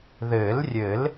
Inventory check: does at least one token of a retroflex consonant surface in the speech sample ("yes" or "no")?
no